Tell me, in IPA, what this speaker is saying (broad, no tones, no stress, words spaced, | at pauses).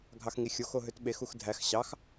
ɡʱɑxŋixʲoxo ɦøtɓexux dʱæx ɕɑx